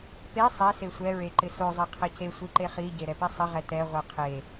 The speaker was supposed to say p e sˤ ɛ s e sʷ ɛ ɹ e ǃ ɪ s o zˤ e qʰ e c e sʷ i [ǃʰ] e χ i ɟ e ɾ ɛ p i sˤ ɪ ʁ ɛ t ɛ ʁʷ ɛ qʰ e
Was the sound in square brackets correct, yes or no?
no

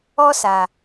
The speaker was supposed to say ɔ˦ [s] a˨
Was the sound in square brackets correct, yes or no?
yes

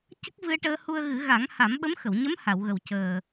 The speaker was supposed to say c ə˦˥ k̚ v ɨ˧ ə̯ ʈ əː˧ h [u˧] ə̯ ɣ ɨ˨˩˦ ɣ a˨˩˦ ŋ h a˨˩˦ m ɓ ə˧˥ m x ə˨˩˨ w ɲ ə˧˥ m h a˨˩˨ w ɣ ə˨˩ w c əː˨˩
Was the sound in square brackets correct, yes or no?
yes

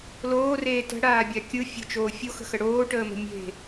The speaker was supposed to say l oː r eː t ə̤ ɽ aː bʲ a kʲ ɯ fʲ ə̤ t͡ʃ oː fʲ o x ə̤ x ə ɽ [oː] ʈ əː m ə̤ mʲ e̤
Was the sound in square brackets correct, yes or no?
yes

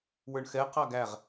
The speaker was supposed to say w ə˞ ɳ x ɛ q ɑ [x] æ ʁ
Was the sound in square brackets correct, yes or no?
no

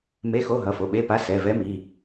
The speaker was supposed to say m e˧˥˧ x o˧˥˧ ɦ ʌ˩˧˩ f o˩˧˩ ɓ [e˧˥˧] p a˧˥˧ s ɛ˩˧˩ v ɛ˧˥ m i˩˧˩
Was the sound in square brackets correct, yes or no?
yes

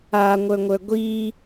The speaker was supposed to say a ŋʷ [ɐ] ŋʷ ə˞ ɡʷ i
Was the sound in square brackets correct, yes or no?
no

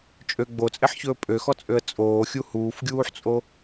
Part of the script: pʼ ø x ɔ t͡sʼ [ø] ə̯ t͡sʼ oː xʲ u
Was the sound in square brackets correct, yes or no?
yes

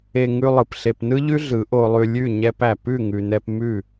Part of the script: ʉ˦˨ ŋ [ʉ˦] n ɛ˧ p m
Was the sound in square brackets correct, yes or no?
no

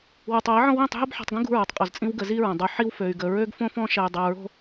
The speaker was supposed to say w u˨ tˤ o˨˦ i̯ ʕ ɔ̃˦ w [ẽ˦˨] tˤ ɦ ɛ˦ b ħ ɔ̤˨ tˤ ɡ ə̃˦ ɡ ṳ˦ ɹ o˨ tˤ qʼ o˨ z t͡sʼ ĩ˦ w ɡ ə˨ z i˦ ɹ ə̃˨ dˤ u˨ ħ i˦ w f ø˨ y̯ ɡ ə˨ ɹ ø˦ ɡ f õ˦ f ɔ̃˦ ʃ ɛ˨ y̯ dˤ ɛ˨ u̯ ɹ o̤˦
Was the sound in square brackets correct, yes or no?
no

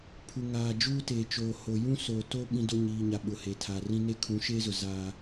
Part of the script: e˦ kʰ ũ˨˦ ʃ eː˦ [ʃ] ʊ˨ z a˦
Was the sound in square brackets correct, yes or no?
no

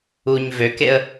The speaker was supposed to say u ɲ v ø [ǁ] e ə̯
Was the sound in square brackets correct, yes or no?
no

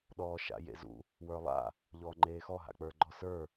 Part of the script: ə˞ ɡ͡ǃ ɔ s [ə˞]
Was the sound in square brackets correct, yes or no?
yes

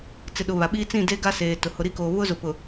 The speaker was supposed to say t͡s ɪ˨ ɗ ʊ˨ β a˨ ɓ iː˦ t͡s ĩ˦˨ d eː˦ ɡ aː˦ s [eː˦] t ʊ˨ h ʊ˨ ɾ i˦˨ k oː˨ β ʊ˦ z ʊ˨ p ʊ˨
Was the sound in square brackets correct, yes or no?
no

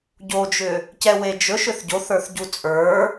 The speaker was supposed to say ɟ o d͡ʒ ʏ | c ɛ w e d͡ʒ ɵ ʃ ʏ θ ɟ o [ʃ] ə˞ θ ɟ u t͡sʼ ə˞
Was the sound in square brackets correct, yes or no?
no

